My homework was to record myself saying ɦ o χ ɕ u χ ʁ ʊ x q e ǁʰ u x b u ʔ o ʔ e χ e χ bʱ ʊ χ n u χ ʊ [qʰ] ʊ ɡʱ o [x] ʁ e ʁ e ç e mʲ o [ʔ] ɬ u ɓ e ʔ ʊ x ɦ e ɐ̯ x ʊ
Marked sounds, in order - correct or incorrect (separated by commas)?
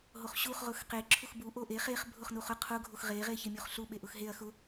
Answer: correct, correct, incorrect